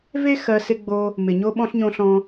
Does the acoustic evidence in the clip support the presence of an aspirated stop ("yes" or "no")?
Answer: no